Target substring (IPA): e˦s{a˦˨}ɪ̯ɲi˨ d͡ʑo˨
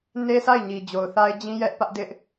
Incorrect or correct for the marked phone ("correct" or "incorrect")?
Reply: correct